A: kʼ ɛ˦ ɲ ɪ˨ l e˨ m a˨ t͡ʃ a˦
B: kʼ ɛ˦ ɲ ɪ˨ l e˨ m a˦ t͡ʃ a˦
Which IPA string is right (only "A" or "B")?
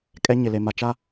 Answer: A